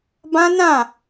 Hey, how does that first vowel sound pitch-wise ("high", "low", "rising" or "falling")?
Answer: high